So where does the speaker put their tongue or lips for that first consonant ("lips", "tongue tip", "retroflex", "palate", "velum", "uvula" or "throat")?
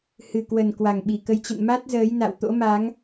throat